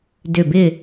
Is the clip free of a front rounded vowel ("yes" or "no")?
no